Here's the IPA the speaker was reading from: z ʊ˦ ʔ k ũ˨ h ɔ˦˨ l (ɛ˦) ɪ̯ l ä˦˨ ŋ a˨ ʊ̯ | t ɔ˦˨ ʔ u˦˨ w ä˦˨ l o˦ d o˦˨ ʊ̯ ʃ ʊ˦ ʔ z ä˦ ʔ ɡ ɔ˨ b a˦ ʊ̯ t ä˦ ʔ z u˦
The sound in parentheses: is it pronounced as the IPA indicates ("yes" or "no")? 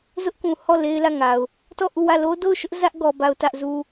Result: no